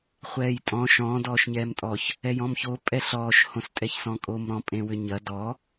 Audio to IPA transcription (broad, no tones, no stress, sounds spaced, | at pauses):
χʷ ɛː j tʼ ɔ̃ ʃ ɔ̃ d ɔː ʃ ɲ ɛː m tʼ ɔ ç | ɛ j ɔ̃ m ç o pʼ ɛ ɬ ɔː ʃ h õ s tʼ ɛ ç s ɔ̃ kʼ o m ɾ ɔ̃ pʼ ẽ w ʏ ɲ ɐ d ɔ